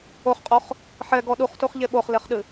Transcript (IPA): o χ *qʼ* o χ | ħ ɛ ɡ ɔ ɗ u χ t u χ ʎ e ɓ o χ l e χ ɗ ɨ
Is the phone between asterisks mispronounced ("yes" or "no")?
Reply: no